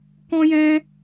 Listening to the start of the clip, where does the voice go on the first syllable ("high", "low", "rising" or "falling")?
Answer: high